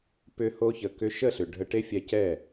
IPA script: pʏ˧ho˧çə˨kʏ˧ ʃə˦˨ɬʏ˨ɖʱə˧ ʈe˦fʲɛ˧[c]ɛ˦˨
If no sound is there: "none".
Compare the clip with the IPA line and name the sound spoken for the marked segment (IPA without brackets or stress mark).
c